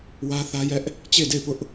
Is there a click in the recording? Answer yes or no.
no